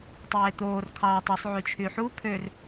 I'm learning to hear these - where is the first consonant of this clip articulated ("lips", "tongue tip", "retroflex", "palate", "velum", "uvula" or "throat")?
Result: tongue tip